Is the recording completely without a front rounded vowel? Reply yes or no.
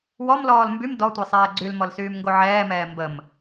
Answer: no